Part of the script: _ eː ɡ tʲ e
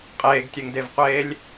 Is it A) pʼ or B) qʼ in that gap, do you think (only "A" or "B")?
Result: B